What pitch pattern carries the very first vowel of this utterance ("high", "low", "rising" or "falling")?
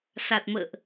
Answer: low